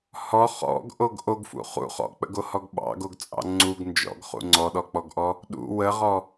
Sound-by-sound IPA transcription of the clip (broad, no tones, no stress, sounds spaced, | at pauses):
h ɔ χ ɔ̰ ɡ ʔ o ɡ ʔ o ɡ f ṵ χ ṵ χ ɔ̰ k͡p ə̰ ɡ o h ɔ ɡ ɓ ɑ̰ ɡ o ɡ t͡sʼ ɑ̰ ŋ͡ǀ u ɡ n d͡ʒ ɔ̰ ɡ χ ṵ ŋ͡ǀ ɔ ɗ ɔ k͡p ɔ ɡ ʔ ɔ | ɗ ṵ w ə ʁ ɔ